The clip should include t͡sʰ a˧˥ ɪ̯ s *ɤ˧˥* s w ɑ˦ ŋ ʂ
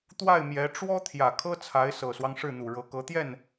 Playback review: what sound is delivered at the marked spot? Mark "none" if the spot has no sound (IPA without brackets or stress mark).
ɤ˨˩